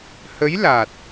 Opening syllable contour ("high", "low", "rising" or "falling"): rising